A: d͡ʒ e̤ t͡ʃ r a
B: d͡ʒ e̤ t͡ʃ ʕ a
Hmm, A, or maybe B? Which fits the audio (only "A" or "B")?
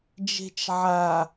B